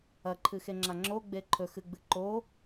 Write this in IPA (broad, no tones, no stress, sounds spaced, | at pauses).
ɐ ǃʰ ɨ x e ŋ͡ǁ a ŋ͡ǁ o ɡ͡b e ǃʰ ɵ x ɨ ɡ͡b ɨ ǃ o